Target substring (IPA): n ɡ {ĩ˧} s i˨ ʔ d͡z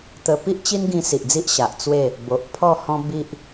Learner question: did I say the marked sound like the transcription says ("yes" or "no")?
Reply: yes